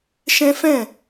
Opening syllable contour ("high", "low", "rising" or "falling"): high